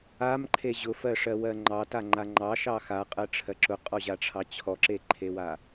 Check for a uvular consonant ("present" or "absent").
present